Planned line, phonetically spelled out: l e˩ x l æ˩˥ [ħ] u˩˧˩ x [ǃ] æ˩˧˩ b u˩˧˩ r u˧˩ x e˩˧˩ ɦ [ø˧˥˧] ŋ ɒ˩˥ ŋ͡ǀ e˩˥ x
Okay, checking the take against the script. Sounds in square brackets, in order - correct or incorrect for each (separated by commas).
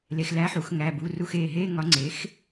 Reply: correct, incorrect, incorrect